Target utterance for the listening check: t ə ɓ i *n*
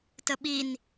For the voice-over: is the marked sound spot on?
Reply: yes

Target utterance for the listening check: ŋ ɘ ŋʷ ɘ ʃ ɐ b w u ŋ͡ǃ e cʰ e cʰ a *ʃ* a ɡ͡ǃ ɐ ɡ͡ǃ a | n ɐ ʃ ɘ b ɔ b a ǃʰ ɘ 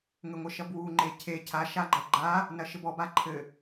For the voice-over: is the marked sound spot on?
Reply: yes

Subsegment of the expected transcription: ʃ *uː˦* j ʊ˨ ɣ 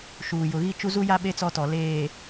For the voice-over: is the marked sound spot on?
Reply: no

